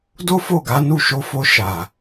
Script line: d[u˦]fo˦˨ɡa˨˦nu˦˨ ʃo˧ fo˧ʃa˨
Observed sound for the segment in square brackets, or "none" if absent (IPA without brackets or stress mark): o˦